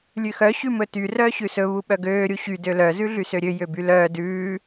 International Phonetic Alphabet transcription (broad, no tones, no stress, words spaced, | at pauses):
lʲʉxœ ɕʉmɵty rœːɕʉsɵ βuɓœɡøː ɾʲuɕy dølœ zʉɮysøɾʲø jøbylœː dʉː